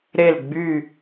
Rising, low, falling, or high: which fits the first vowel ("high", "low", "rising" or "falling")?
falling